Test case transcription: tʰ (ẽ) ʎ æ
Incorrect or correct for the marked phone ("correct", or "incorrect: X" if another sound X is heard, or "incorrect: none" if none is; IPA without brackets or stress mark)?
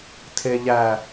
incorrect: e